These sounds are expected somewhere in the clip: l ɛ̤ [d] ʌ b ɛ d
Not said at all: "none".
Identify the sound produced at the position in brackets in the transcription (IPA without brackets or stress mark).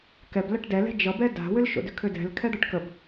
d͡ʒ